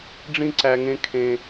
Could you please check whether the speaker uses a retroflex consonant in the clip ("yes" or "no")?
yes